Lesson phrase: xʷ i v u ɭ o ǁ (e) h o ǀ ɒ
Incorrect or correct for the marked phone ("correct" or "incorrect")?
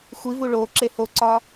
correct